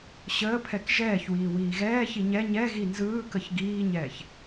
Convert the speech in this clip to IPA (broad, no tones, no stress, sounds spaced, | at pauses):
ɕ əː pʰ ɛ k ʒ ɛː ç w iː w iː ɣ ɛː ç i ɲ ɛ ɲ ɛ ɣ i n z ɯː k ə ç ɡ iː ɲ ɛː ç